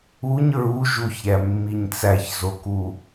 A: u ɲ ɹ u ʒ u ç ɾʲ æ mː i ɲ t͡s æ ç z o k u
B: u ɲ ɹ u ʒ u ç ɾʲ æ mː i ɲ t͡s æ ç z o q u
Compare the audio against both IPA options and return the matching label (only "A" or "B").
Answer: A